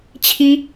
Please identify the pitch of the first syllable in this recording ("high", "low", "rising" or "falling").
high